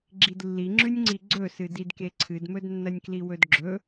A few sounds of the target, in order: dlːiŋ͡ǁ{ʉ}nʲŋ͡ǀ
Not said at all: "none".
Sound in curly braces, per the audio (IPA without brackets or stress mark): ʉ